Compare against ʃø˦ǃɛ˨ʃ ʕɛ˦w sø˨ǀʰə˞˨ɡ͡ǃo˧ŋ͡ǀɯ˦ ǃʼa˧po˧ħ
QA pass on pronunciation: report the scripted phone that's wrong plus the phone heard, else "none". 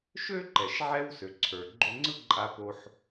none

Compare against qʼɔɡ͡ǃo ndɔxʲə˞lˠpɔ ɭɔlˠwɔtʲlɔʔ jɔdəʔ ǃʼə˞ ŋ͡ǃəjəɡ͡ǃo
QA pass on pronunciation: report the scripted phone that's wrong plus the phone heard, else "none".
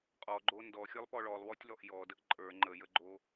none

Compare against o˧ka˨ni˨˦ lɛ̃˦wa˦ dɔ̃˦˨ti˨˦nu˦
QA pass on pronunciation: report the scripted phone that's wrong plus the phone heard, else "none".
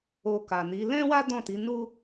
none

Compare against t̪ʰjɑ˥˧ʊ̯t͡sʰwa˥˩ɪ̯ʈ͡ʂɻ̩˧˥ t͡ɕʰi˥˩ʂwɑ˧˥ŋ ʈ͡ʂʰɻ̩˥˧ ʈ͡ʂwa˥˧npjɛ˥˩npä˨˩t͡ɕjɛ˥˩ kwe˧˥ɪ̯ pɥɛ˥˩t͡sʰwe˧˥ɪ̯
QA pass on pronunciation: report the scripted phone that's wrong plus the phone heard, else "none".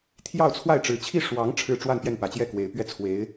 none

